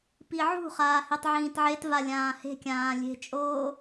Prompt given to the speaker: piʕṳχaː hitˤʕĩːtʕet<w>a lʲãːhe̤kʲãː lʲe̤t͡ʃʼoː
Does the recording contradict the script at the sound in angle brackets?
yes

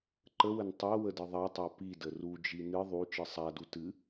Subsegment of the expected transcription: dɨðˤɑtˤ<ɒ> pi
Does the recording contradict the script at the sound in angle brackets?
yes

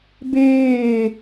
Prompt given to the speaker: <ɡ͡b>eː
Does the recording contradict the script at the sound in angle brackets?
yes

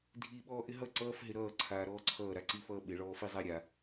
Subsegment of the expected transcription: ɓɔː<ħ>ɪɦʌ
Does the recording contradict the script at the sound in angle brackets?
yes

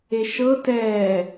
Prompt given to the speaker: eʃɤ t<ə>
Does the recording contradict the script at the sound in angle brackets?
yes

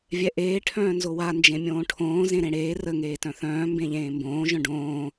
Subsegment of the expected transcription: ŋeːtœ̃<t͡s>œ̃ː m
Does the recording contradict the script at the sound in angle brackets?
yes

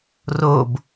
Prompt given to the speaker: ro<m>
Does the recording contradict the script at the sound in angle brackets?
yes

